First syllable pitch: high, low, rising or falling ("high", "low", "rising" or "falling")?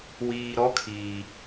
low